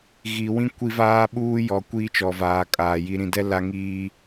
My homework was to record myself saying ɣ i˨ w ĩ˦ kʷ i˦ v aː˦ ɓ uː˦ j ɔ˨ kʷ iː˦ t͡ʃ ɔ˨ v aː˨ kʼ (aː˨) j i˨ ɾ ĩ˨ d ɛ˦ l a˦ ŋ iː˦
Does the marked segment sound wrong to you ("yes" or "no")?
no